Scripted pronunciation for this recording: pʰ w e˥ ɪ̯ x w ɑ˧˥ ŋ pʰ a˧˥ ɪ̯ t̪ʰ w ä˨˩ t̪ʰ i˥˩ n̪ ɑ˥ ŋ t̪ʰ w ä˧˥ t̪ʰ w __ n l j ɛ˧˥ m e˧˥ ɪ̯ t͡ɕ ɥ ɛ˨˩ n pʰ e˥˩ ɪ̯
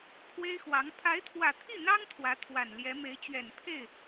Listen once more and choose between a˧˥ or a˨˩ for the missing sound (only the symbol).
a˨˩